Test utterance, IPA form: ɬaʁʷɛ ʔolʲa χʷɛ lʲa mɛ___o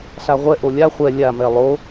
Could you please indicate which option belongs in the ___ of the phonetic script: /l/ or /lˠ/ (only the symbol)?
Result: lˠ